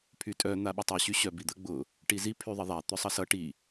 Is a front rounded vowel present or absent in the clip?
present